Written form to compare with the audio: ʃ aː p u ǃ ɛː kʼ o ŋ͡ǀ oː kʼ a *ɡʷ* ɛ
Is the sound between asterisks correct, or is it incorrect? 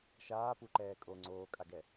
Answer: incorrect